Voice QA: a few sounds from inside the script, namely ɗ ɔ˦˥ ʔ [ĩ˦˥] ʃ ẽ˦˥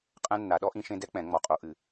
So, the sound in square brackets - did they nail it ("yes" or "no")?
yes